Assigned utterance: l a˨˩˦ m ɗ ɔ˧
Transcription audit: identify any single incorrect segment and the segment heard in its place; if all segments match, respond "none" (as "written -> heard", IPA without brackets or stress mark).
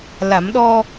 none